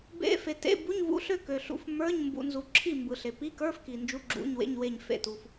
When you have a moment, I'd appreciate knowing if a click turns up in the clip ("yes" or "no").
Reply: yes